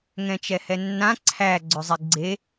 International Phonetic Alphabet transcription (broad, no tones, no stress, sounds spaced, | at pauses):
ŋ ɛ̃ t͡ʃ ɛ h ɛ nː ã ǀʰ æ ɡ͡ǀ ʏ zˤ i ɡ͡ǀ e